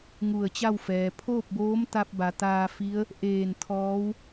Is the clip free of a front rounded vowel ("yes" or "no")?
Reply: yes